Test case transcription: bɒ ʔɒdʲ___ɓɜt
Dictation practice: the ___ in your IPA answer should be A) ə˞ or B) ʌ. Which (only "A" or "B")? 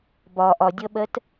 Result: B